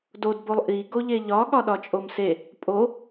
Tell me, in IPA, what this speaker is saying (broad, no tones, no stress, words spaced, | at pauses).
dodbolˠ ʔiɡo ʎeʎɒ ɠɒɗɒt͡ʃʼomse | pʼo